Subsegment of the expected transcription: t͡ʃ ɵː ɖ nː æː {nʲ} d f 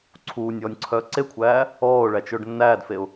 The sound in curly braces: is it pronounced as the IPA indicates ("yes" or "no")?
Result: no